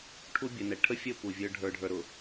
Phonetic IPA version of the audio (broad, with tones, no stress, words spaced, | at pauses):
ʈʰu˦bʲə˨ nɛ˨ ʈʰə˦fʲə˦˨ pu˨vʲə˞˦ ɖʱə˞˦ɖʱə˞˦ɾʊ˨